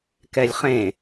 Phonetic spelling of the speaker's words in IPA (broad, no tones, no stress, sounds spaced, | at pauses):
k ɛ lʲ χ ẽ